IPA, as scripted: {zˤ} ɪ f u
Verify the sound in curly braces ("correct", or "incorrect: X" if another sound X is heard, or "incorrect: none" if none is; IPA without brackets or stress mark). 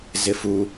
incorrect: z